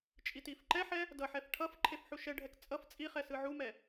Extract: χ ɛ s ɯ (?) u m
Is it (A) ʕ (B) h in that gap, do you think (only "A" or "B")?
A